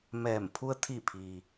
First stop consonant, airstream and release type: aspirated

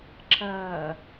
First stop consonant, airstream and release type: click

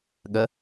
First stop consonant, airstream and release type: implosive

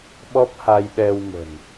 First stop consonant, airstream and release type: implosive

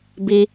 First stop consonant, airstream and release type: plain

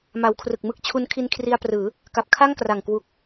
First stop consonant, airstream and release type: aspirated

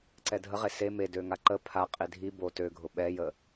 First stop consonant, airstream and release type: click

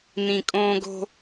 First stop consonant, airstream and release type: ejective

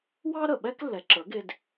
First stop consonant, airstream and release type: implosive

